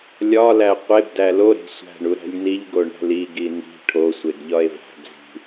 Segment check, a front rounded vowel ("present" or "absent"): absent